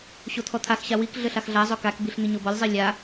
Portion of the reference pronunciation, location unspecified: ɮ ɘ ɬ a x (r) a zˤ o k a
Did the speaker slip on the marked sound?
yes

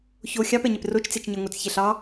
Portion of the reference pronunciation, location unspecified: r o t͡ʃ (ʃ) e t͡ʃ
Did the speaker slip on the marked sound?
yes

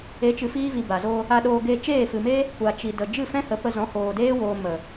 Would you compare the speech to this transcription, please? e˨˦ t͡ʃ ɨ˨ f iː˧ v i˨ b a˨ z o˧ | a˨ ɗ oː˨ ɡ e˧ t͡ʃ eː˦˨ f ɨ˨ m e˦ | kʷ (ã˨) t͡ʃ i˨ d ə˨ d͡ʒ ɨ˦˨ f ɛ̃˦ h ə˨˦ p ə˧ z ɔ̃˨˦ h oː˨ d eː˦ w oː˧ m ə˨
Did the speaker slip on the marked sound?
yes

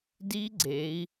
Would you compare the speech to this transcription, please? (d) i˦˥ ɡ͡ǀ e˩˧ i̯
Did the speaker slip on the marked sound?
no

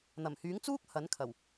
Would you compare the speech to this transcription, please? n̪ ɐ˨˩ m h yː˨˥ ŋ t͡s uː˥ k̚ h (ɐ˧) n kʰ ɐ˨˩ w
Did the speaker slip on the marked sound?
yes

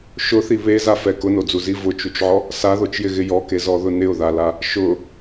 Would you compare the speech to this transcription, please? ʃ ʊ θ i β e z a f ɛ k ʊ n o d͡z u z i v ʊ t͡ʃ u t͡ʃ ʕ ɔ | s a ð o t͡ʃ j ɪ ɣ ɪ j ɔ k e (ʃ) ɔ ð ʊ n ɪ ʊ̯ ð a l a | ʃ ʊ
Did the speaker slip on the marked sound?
yes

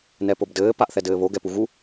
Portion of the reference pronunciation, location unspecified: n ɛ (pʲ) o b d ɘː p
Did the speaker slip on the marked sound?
yes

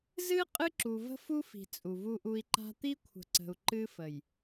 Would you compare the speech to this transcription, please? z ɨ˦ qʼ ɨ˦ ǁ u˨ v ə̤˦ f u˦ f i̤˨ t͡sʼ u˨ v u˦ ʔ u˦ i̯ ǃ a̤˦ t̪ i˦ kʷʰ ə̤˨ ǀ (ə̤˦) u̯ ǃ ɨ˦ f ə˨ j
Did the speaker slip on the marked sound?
yes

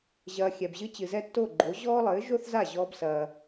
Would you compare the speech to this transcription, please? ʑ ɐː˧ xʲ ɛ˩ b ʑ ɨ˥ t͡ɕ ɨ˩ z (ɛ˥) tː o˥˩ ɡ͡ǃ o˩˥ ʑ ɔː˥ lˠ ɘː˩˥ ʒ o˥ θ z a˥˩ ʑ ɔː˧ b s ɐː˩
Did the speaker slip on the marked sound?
no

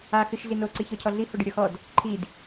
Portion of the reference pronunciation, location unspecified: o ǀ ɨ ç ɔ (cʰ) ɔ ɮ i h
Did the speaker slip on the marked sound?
no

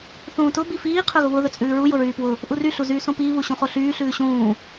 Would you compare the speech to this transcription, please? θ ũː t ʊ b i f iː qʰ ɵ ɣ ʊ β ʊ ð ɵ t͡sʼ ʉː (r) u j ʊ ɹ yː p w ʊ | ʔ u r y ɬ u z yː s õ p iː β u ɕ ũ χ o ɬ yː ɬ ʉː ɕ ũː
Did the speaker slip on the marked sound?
yes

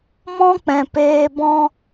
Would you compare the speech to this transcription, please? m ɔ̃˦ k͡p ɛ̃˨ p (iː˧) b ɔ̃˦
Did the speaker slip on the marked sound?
yes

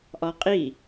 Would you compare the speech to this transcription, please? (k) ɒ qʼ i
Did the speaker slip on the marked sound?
yes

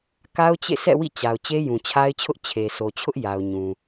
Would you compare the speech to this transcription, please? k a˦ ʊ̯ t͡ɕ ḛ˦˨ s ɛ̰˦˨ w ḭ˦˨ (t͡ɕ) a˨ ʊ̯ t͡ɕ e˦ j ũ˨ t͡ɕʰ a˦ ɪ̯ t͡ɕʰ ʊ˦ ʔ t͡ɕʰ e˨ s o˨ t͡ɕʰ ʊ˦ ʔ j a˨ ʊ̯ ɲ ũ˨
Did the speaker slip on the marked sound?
no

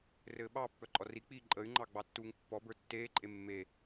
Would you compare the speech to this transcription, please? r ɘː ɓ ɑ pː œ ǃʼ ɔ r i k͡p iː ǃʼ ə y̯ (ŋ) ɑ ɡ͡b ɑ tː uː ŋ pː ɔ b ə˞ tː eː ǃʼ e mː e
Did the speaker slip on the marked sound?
yes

